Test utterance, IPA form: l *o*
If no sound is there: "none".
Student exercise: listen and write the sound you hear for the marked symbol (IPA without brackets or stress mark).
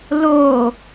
oː